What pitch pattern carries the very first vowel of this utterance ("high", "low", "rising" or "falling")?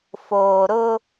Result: low